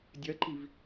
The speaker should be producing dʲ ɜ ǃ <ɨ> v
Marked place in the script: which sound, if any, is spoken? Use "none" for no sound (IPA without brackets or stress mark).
i